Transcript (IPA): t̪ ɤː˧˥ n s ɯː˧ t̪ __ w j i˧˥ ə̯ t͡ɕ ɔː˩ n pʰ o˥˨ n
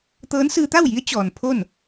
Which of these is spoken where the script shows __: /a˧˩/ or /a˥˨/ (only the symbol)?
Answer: a˥˨